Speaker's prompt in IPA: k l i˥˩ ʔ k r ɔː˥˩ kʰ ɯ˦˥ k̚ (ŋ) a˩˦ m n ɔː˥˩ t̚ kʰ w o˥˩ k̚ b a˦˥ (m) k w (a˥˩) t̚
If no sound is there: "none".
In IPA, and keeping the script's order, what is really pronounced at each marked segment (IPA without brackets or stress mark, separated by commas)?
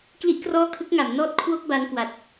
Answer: ŋ, n, a˨˩